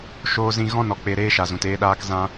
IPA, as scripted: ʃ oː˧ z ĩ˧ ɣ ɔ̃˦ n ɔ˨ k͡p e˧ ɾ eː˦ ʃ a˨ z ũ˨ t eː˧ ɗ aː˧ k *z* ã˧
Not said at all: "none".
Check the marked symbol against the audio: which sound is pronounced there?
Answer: z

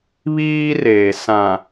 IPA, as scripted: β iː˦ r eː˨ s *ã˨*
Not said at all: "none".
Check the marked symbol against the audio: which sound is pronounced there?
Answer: ã˨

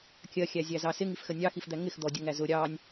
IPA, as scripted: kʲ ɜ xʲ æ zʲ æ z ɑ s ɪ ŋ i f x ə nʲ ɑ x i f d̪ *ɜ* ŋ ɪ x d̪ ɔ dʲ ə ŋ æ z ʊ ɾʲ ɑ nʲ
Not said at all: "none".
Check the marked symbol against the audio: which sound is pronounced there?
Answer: æ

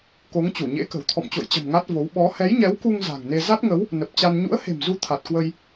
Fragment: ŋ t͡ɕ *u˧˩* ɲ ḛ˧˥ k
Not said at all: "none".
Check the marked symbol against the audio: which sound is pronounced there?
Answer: u˧˩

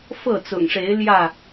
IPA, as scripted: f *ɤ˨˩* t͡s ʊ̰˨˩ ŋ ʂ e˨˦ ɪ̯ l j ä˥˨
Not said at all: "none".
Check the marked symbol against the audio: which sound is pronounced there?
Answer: ɤ˥˨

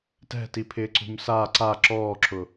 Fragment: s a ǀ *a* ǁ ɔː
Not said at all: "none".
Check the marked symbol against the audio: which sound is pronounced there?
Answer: a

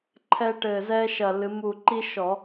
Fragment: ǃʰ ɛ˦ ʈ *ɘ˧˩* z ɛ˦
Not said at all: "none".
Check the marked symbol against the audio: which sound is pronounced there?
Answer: ɘ˧˩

